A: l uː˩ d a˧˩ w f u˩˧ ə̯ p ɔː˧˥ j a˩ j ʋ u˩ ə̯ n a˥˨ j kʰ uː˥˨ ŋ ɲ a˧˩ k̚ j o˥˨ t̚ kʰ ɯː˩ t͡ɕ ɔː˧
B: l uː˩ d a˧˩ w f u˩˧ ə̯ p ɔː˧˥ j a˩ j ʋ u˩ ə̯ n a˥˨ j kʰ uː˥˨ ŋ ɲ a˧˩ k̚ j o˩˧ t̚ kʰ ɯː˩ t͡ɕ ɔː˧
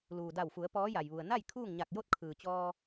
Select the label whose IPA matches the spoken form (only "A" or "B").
A